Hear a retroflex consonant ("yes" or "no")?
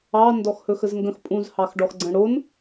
yes